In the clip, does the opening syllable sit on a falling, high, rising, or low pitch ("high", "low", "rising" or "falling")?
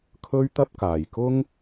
high